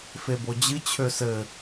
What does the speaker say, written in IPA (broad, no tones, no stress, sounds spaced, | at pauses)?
f e b o d͡ʑ ɨ t͡ɕʰ ø s ɘ